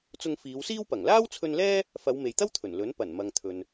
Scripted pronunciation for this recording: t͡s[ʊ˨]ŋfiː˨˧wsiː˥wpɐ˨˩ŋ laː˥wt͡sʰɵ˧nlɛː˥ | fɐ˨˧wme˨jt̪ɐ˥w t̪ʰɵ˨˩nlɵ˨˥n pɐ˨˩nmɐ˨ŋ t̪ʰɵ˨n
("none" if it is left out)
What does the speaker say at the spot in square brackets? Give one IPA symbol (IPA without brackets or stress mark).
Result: ʊ˧